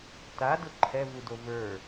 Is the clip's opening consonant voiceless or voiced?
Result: voiceless